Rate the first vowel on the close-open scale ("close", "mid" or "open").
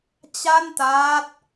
open